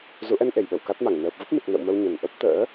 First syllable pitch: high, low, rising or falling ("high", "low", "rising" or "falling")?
rising